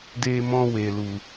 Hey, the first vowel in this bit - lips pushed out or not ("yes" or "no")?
no